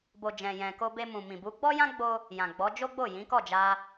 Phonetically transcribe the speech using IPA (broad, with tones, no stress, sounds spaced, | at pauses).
b o˨ d͡ʒ ɛ̃˨ j ɛ̃˨ k o˧ b e˧ m ũ˨ m ĩ˨ b u˨˦ ɡ͡b ɔ˦ j ã˦ ɡ͡b o˧ | j ã˨ ɡ͡b ɔ˨˦ d͡ʒ o˦ ɡ͡b o˦˨ j ĩ˨˦ k ɔ˦˨ d͡ʒ a˧